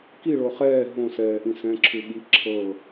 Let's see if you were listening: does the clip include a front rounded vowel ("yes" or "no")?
no